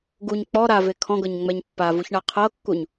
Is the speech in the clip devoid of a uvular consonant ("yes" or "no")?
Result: no